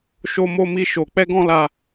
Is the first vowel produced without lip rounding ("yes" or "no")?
no